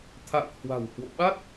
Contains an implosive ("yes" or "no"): yes